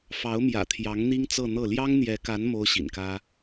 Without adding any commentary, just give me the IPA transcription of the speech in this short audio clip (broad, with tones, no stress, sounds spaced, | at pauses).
f ɑ˧˥ ʊ̯ m j ä̰˨˩ t̪ʰ j ɑ˧˥ ŋ n̪ i˥ ŋ t͡s ɤ˥˧ n̪ ɤ˥˩ l j ɑ˥ ŋ n̪ j ɛ˧˥ k a˧˥ n m o˥ ʊ̯ ɕ ḭ˨˩ n k ä˥